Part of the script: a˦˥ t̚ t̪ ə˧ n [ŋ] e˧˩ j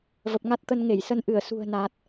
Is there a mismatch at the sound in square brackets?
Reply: no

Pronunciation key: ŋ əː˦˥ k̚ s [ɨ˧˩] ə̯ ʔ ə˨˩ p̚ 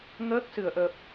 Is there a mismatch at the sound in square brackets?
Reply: no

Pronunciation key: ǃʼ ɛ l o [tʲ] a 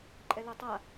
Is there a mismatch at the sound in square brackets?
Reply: yes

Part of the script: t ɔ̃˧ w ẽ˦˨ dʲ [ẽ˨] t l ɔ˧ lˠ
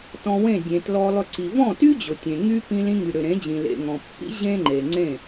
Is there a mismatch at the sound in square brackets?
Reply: no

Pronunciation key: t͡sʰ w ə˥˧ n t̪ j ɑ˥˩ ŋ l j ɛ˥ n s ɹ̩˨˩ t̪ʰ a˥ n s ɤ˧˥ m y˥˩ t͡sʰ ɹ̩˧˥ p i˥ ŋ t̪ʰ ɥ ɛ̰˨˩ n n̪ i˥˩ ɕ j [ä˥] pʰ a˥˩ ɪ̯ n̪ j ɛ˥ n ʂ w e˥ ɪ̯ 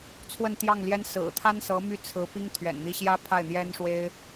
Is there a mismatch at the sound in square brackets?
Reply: no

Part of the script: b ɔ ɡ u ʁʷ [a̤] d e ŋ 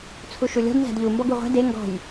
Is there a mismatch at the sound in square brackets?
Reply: yes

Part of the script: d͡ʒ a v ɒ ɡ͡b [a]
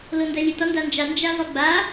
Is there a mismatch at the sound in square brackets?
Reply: no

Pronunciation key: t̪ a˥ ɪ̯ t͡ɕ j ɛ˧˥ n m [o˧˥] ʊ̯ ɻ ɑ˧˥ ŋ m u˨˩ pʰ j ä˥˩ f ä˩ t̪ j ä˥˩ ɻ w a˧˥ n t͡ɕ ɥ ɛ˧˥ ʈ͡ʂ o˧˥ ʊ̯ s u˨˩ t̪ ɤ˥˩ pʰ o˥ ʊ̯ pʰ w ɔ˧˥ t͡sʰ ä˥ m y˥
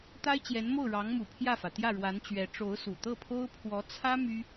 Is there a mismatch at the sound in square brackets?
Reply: yes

